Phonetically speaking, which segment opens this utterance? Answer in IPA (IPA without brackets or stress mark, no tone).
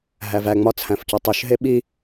ɦ